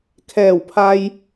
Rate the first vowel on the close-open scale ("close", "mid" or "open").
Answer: mid